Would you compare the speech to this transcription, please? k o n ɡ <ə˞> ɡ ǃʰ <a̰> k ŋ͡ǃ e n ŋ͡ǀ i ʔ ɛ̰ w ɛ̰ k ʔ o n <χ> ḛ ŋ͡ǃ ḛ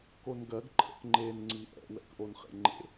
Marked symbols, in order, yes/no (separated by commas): no, no, yes